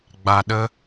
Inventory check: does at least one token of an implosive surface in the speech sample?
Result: yes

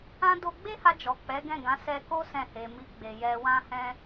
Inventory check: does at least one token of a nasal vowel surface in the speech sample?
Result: yes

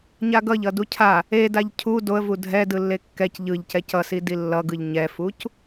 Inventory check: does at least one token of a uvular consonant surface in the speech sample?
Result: no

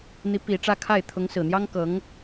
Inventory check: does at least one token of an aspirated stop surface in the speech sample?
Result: yes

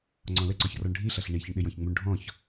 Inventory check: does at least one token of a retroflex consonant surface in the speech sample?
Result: yes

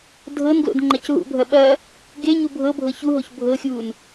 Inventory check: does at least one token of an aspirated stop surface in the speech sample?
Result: no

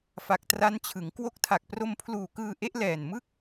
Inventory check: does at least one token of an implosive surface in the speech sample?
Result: no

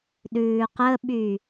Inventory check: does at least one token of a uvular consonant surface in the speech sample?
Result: yes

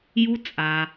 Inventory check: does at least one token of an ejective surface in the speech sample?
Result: yes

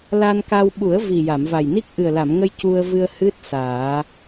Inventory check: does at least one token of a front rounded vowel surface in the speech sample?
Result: no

